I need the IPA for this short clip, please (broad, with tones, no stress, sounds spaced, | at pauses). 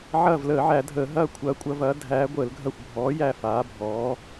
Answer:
ʕ ɐː˦˨ v l əː˨˩˦ ʕ æ˨˩˦ dʱ əː˨˩˦ ɦ ɐː˦˨ kʷʰ ɐː˨˥ kʷʼ ɐ˨˥ v ɐː˨˥ dʱ æː˨˥ ɡʷ əː˨˩˦ l ɡʱ ɐ˦˨ xʷ bʱ ɔː˨˥ j æ˦˨ f aː˨˥ bʱ ɔː˨˥